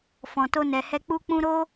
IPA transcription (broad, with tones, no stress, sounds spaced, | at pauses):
f ɔ̃˨ t o˧ n ɛ˨ h ɛ˧ k͡p u˦ k͡p ũ˦ ɾ o˦